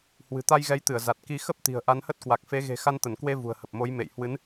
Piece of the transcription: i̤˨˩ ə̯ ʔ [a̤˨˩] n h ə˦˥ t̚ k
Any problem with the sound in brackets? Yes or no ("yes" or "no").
yes